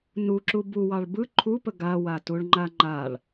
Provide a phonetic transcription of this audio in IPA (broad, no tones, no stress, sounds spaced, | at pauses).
n u ǁ u b u w ɑ ɭ b ɯ ǃʰ u p ə ɡ a w a t u ɭ ŋ͡ǃ a ŋ͡ǃ a ɭ